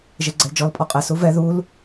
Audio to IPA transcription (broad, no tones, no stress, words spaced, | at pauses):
ʒeɡ͡ǀɛld͡ʒɔl pʼɔqʼɛ suvɛ ðul